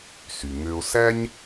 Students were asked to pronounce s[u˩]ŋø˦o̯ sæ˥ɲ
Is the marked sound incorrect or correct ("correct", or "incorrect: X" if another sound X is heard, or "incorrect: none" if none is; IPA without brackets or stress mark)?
incorrect: y˩